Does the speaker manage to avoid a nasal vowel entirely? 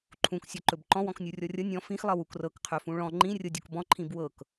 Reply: no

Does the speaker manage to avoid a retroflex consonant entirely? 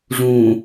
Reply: no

